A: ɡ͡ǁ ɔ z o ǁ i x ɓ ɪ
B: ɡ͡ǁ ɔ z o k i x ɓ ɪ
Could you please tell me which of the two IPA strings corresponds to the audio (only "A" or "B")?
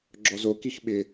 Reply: B